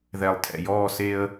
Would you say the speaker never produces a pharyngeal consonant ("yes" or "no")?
yes